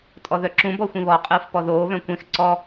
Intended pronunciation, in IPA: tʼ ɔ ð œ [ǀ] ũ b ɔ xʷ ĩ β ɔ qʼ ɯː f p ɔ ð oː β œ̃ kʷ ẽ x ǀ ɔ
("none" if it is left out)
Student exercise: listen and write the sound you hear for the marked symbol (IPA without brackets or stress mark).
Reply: ǁ